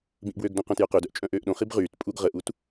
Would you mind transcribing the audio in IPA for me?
b ĩ ʔ b w ø ɡ d õ q œ̃ t j œ q ø d œ ʔ t͡ʃʼ œ̃ ʔ øː ʔ ɗ õ χ i b ʁ yː t pʼ u ɡ ʁ ə ʔ u t

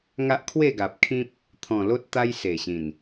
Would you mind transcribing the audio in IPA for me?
ŋ a˦ ʔ kʰ w e˥˧ ɡ a˨ p̚ kʰ ĩ˦ p̚ | t̪ʰ ɔ̃˨˩ l o˦ t̚ t̪ a˦ j s e˨˩ ɕ ĩ˨˩ n

